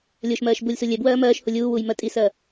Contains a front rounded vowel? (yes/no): no